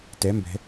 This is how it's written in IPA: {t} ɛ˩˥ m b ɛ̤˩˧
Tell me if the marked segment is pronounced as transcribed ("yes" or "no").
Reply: yes